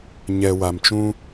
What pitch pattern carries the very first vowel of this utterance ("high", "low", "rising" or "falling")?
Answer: low